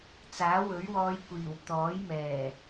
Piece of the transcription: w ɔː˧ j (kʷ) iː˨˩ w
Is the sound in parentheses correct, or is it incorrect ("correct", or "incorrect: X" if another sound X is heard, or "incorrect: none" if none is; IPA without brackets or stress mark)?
correct